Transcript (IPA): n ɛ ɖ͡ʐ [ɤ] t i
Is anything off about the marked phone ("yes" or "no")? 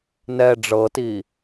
no